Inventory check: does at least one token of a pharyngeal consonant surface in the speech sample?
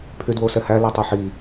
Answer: yes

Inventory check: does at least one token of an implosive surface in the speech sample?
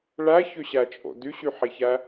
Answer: no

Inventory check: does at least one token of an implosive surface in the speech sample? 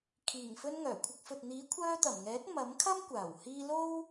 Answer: no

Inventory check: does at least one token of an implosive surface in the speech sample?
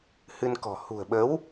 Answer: yes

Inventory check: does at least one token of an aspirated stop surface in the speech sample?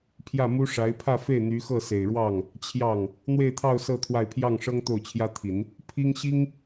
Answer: yes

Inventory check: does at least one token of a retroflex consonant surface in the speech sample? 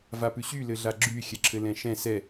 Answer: no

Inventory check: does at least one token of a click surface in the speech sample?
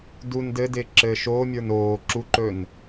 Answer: yes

